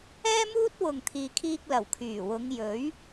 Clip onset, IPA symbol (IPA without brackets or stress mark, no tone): ɛː